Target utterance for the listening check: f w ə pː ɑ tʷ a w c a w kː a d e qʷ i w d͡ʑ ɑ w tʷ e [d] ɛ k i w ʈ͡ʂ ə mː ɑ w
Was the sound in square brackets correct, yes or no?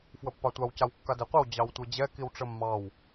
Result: no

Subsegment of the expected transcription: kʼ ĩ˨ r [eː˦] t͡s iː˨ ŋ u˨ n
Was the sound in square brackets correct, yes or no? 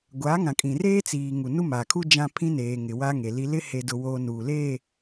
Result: yes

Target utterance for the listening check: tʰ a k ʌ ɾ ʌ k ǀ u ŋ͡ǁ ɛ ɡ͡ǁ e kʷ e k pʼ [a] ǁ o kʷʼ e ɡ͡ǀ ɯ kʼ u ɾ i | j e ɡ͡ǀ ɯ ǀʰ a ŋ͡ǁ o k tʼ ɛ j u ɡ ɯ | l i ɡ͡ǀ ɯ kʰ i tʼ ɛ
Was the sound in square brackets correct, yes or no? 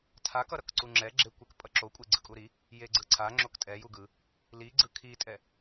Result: no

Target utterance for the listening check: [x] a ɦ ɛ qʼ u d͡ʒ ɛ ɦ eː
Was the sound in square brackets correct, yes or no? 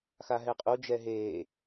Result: yes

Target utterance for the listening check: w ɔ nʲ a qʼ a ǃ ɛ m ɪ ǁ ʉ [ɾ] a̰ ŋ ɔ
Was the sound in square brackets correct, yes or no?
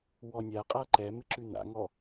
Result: no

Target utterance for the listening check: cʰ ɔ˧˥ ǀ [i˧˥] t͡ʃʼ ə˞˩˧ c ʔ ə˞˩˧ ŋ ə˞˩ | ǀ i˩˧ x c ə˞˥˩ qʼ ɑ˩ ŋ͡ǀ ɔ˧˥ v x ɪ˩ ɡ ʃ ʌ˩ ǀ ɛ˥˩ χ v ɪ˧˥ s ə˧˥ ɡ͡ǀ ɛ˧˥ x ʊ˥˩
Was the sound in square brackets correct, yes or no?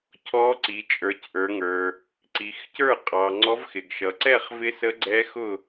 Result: no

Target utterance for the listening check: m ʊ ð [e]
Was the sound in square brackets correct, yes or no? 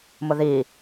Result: no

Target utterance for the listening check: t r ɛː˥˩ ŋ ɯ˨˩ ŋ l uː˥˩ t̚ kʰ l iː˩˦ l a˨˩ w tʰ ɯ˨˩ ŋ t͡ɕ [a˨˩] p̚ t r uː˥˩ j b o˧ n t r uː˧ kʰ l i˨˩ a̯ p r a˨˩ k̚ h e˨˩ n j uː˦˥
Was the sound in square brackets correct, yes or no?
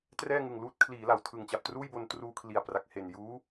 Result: yes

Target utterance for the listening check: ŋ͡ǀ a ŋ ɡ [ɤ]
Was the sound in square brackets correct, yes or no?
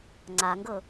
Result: yes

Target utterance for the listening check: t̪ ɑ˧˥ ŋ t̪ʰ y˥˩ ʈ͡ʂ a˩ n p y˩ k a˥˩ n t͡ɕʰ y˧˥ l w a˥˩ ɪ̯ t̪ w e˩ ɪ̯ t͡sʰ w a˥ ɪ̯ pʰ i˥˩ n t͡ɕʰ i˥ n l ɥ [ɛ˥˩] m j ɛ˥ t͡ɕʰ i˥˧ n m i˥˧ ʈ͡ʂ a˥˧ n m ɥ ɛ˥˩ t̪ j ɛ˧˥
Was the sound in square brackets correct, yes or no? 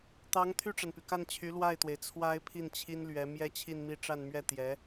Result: no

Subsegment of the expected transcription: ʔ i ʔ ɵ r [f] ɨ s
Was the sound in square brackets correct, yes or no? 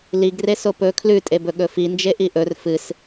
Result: yes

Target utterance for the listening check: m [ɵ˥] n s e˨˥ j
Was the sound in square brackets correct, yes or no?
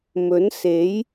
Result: no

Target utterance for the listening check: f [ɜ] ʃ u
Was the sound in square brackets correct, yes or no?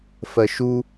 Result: yes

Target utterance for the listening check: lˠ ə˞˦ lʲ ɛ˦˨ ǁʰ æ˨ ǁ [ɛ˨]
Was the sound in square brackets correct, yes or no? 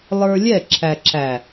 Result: no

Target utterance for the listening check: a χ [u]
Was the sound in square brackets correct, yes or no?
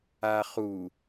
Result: yes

